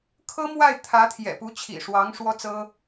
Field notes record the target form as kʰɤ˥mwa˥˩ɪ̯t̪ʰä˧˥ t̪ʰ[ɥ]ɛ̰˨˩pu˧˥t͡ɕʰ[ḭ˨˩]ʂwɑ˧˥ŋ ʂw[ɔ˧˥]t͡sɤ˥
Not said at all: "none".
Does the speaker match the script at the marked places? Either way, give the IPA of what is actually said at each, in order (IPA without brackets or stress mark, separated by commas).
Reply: j, ḭ˨˩, ɔ˥